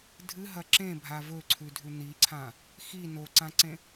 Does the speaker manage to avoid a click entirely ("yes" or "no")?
no